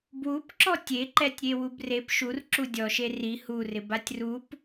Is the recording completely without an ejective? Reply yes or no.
yes